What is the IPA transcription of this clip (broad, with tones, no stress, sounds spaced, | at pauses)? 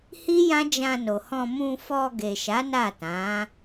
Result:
h i˦ j ã˦ d͡ʒ ã˧ n o˨ h ɔ̃˧ m ũ˧ f ɔ˧ ɡ e˨ ʃ a˨˦ n a˦˨ t ã˨˦